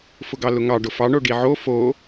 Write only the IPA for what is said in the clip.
f ʊ ɡ ɑ l ʊ ŋ ɑ ɖ ʊ f ɑ ɳ o ɖ i ʕ o f o

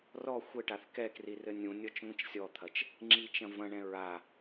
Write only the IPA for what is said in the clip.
r ɔ xʷ ɘ ʈ a θ k ɛ k r i r ɘ nʲ ũ nʲ ɔ t͡ʃ ŋʷ ĩ t͡ʃ sʲ ɔ t̪ʰ ɐ t͡ʃ | ŋ͡ǁ i t͡ʃ ɐ̃ v ɐ̃ ɳ ɛ̃ ɹ a

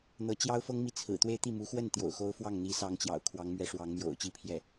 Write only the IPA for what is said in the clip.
n̪ ɤ˧˥ t͡ɕ j ɑ˥ ʊ̯ f ɤ˥ ŋ m i˥˩ t͡sʰ ɹ̩˨˩ t̪ w e˥˧ ɪ̯ t̪ i˥˩ m u˧˥ x w ə˥˩ n t̪ j o̰˨˩ ʊ̯ x o˥ ʊ̯ f w ɑ˥˩ ŋ n̪ i˧˥ s ɑ˧˥ ŋ t͡ɕ j ɑ̰˨˩ ʊ̯ kʰ w ɑ˧˥ ŋ m ɥ ɛ˧˥ ʂ w ɑ˧˥ ŋ m j o̰˨˩ ʊ̯ t͡ɕ i˥˧ pʰ j ɛ˥˩

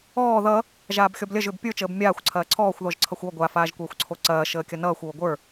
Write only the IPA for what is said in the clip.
ɔː ð ʌ | ʒ aː b xʲ ɔ b lʲ ɐ ʒ ʏ b pʲ ə˞ t͡ʃ əː b mʲ aː xʷ ǀʰ ɐː ǀʰ ɔː xʷ ð ɔ ʒ ǀʰ ʌ xʷ ɔ ɡʷ a f aː ʒ kʷ ɐː xʷ ǀʰ o ǀ ɐː ʃ əː kʲ ʌ n ʌː xʷ oː ɡʷ ə˞

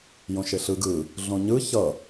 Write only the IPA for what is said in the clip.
j õ ʃ e ɬ ɯ ɡ ɯ | ɮ õ ɲ ɯ ç ʌ

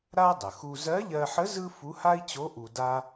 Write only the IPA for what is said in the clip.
ɾ a˥ dˤ ə˩ x u˧ z ɜ˧˥ ʎ ɜ˧ ħ ə˧˥ z ɯ˥ f u˧˥ h a˥ i̯ t͡ɕ o˧˥ ʔ u˧ d a˥

